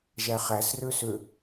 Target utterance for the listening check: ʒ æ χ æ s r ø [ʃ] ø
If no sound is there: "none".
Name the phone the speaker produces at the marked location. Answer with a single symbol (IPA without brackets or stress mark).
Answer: s